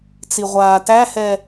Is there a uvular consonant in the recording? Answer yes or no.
yes